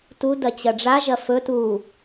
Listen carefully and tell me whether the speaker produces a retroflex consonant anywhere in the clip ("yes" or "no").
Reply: yes